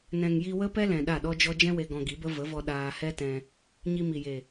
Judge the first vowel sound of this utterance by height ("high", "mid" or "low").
mid